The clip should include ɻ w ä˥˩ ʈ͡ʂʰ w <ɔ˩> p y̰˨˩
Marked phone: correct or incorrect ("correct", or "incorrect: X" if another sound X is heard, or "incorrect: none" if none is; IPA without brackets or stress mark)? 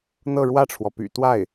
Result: correct